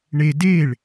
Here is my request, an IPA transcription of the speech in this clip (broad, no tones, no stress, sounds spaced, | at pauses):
ɳ e d e ɭ